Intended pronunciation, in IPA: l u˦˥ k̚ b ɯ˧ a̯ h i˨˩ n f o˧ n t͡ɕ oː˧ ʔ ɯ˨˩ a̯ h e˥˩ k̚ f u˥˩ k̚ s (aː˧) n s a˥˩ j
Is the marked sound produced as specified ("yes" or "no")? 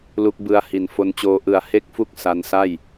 no